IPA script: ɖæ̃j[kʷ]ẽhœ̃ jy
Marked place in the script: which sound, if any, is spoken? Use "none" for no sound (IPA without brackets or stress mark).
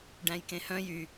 k